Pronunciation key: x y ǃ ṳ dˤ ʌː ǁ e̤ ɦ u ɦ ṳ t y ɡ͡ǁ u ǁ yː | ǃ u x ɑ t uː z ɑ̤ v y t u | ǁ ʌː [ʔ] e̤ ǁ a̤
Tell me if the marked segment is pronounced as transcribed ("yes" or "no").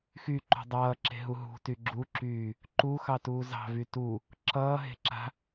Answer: no